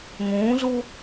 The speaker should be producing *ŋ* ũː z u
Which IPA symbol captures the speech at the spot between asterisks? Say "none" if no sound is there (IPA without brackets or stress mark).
ŋ